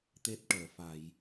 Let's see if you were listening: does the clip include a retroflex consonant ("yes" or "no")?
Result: yes